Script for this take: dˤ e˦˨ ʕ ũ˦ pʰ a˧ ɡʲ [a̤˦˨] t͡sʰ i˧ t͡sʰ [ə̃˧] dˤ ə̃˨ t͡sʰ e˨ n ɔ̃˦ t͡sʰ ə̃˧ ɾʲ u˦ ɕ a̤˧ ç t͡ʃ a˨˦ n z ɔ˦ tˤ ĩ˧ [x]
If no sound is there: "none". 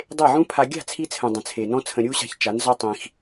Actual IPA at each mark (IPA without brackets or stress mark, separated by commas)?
a̤˦˨, ə̃˨, x